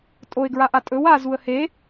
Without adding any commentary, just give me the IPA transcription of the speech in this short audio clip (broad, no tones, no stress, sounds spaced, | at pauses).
tʼ o ɪ̯ ɡ ɹ a ʔ a tʼ ɵ w a z u ə̯ h e